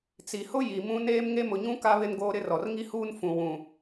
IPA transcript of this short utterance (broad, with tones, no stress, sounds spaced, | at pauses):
t͡s i˨ h ʊ˦ j i˨ m ũ˦ n eː˦ m ŋ e˦ m ʊ˨ ɲ ũ˦ k a˦ β ɪ˦ n ɡ oː˦ ɾ ɪ˦ r ɔ˨ r ŋ i˦ h uː˦ n f ũ˨ w ũ˨